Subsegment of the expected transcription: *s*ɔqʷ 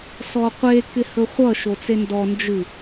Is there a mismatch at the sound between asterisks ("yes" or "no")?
no